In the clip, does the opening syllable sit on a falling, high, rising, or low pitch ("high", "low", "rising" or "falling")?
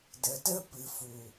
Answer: low